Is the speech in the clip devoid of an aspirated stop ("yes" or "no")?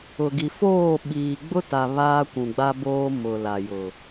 yes